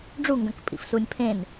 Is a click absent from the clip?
yes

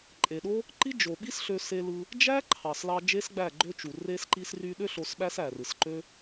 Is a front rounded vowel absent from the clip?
no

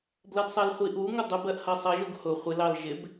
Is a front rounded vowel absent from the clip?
yes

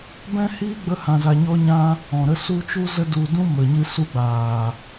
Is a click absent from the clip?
yes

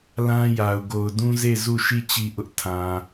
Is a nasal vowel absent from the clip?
no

